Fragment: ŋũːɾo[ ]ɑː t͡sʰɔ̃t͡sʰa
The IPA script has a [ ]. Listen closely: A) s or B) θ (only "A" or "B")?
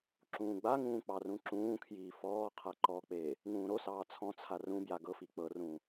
A